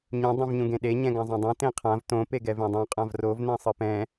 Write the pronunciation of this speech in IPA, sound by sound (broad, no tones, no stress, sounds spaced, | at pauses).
ɲ ũ dˤ ũ v ɲ ũ ɡ ẽ ɗ e ɲ ɛ̃ ɡ ã zˤ ẽ dˤ ũ t ẽ qʰ ã v t õ p e ɡ ɛ v ẽ dˤ ũ qʼ ã v r o v n ɛ̃ sˤ ɯ p ɛ̃